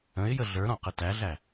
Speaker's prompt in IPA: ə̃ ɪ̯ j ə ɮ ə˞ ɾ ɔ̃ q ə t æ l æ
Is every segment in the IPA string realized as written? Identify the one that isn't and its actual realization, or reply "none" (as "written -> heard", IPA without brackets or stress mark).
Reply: l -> ɮ